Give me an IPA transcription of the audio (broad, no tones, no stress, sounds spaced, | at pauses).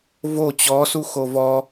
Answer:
v o t͡ɕ ɔ s u x o v ɔ